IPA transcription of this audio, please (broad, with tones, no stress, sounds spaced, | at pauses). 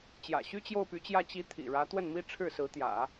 t͡ɕ j ä̰˨˩ ɕ y˥ t͡ɕ j o˥˩ ʊ̯ p y˧˥ t͡ɕ j ä˥˩ t͡ɕ i˧˥ t̪ʰ ḭ˨˩ ɻ ä˧˥ t̪ w ə˥˩ n m i˥ ʈ͡ʂʰ ɻ̩˥˩ s ɹ̩˧˥ t̪ j ä̰˨˩˦